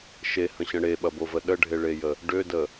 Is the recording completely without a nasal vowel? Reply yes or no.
no